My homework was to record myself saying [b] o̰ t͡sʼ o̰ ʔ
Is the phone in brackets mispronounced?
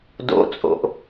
yes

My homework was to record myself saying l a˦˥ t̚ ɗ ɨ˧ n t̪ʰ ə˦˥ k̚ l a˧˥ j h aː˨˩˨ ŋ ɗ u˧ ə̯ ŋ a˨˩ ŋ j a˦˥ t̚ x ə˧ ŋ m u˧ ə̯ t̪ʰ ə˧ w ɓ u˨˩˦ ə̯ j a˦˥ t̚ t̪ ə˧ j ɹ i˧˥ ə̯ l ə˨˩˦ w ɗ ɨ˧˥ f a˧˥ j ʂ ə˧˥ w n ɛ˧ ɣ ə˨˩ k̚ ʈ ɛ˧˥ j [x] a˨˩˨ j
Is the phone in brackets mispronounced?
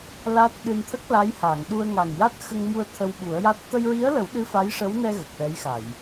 no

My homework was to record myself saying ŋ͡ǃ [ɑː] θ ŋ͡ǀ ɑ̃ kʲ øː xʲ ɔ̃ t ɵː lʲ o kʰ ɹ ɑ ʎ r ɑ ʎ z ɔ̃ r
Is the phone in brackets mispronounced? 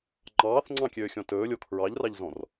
no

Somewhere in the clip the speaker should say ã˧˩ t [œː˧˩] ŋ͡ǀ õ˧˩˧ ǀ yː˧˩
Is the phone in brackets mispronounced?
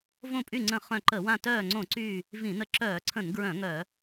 no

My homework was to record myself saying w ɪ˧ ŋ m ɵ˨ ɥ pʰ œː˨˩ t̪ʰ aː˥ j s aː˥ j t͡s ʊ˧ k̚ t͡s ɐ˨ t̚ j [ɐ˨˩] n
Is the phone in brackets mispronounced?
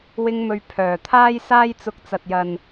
yes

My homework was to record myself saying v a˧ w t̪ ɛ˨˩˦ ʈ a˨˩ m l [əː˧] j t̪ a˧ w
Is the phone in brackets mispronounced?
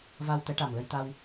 yes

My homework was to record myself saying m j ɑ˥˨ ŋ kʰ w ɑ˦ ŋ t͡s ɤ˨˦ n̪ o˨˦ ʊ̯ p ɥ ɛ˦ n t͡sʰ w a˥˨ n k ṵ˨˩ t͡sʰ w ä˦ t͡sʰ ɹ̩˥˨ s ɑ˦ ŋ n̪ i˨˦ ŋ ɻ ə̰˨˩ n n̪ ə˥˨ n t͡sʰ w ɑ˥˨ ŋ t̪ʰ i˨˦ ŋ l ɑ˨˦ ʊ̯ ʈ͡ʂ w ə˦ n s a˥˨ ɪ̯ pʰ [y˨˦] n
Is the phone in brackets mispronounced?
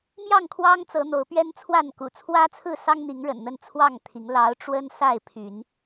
no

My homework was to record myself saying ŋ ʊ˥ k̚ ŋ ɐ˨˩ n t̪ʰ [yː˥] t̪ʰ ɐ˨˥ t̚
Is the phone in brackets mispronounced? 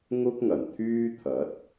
no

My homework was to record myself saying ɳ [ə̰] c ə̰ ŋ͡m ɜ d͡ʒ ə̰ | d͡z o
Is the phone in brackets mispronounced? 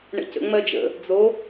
no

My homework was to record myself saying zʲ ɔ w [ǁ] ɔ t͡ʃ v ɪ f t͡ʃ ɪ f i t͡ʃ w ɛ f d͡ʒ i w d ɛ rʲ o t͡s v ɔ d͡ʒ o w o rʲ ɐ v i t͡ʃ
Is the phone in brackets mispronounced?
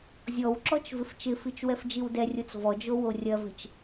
no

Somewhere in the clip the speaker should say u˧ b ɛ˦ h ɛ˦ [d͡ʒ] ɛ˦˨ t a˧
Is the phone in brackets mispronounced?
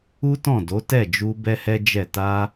no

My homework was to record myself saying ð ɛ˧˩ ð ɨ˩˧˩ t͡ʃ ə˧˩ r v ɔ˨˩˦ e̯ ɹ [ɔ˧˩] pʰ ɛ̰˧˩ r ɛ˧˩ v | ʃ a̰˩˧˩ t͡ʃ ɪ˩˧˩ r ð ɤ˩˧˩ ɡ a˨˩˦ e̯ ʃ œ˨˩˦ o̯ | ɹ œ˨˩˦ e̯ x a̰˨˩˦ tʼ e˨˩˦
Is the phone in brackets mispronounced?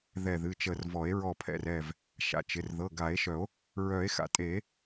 no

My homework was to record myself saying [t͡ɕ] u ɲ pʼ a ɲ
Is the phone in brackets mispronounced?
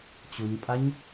no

